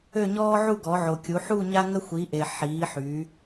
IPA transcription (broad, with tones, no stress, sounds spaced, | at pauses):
ø˥˧ ɲ ɔː˥ ʕ u˥˧ ɡ ɔ˨˦ ʕ o˨ kʲ u˨˦ ħ u˥˧ ɲ a˥ ŋ ə˥ xʷ i˨˦ ʔ e˨ ħ iː˨˦ ħ y˨˦